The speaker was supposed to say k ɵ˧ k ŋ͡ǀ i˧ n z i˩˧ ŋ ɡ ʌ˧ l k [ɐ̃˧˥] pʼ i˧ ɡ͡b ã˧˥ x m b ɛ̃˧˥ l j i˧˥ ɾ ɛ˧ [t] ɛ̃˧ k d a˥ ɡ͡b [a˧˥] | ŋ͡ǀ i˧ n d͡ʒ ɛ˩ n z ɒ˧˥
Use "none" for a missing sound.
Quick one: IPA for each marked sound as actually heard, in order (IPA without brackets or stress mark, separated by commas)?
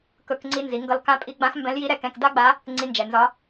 ã˧˥, k, a˧˥